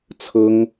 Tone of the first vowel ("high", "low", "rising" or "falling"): high